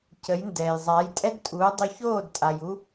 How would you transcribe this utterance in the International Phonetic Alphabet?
cə˩˥jndɛː˩jzˤa˩˥j tʼɛ˥dtʼuː˩˥dˤy˧ çoː˥˩dtʼa˩ju˧

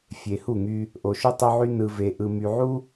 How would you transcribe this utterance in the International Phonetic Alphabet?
fʲe˨ hu˦˨ŋy˦ | ʔo˨ʃu˦ tˤo˦ʕy˦ nɯ˨ve˨ ʔɯ˨my˨ ʕu˦

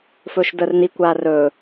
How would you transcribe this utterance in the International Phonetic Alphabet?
fɵːʃdəːrni kʷaːrɵː

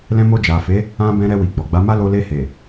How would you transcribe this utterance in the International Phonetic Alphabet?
lɛ̃˧mo˧ d͡ʒa˨fe˨˦ | ã˧ bɛ̃˧ɾɛ˧wi˨ ɡ͡bɔ˨ɡ͡ba˨˦ma˦ lo˧le˧he˨

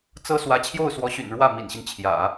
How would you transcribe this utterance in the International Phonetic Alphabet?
t͡sɤ˥ swä˧˥t͡ɕʰjo˥˩ʊ̯swɔ˧˥ɕy̰˨˩n ɻwä˥˩mḭ˨˩nɕi˦n t͡ɕʰjä̰˨˩˦

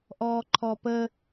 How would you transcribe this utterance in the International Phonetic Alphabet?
ʔɔːǃʰɔpə

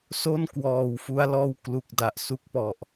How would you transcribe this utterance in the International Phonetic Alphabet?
so˥˩nkwɔː˨˩w fu˦˥a̯lɔː˥˩w klu˨˩k̚da˨˩ʔsu˦˥k̚ pɔ˨˩ʔ

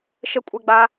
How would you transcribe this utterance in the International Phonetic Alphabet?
ʃəkʷʼɛɡ͡ba

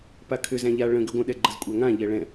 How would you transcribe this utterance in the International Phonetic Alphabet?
pakʰʏ zæ̃ʎa ɭə̃ ɡʏɡʷə̃ ɗɛɡ͡ǃəzkʷʼæŋã ʎɛɭɛ̃

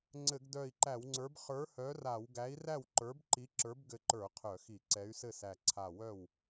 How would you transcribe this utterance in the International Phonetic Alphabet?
ŋ͡ǀɘ˧˩˧ɡdœ˧˩i̯ǃæ˧˩˧wŋ͡ǀə˞˨˥b χə˞˨˥hœ˨˥ra˧˩˧w ɡæ˨˥i̯ræ˥˩w ǃə˞˨˥bǃi˨˥ ǁə˞˨˥bɡɘ˧˩ǃə˞˧˩˧ qʰœ˧˩˧xi˧˩˧ ǀɛ˨˥y̯sɘ˥˩sæ˧˩ ǀʰa˧˩wœ˥˩w

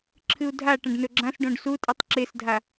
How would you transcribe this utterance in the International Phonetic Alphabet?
ǁʰɨu̯dʱa ʈɐ̃ɖnɵɡ͡ǁãs ɖõɖsutʼɨtˤ ǁesdʱa

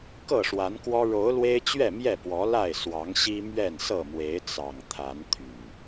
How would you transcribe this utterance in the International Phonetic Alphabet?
kɤ˥˨ʂwa˨˦nkwɔ˦ ɻo˨˦ʊ̯lwe˦ɪ̯t͡ɕɥɛ˥˨mjɛ˥˨ pwɔ˨˦la˥˨ɪ̯ swɑ˨˦ŋɕi˦ mɥɛ˥˨nsɤ˥˨mwe˨˦ɪ̯ t͡sɑ˨˩ŋt̪ʰa˨˦n t̪ʰy˨˩

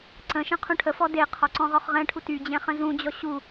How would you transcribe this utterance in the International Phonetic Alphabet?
ǀə̃ʃə̃ qʰũʈʰəfɔ deqʰɔ ǀɔ̃ʁɔχʁɛ̃ʈʰu tyd͡ʑɛ̃ χə̃zũd͡ʑɔ ɕu

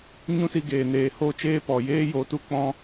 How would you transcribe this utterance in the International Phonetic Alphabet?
ɲũ˦si˧ɡeː˨ neː˨ho˦˨t͡ʃeː˦ pɔ˨jeː˦jo˨˦ tu˧ k͡pɔ̃˦

